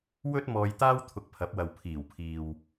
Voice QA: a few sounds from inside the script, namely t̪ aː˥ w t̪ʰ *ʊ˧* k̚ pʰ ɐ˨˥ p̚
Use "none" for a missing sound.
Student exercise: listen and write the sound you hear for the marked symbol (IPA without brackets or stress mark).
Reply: ʊ˧